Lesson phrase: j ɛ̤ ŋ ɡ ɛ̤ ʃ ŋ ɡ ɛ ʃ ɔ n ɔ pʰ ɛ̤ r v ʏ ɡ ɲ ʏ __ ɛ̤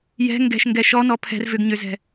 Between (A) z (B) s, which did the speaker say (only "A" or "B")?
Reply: A